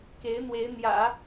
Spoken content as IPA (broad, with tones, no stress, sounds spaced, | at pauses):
k e˧˥ ɪ̯ n̪ w e˧˥ ɪ̯ n̪ j ä̰˨˩˦